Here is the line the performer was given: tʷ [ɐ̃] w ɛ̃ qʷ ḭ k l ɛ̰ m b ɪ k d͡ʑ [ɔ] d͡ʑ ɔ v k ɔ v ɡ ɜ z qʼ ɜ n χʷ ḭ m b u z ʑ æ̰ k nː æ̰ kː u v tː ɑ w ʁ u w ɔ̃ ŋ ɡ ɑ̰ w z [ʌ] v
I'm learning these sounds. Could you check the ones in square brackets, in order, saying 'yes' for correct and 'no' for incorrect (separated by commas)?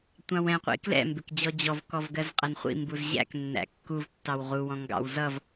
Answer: no, yes, yes